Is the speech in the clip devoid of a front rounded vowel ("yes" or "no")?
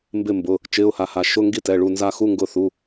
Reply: yes